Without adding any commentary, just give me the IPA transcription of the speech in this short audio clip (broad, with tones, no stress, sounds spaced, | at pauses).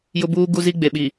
j ʊ˦ b uː˦ ɡ u˦ z i˦ ɡ͡b e˨ ɓ i˨